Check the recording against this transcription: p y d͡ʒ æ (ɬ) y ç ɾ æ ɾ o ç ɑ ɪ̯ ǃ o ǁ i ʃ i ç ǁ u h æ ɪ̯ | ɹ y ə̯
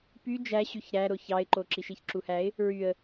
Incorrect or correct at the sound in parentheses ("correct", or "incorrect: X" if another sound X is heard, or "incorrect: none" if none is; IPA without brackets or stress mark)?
incorrect: ɕ